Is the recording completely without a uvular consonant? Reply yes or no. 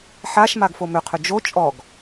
no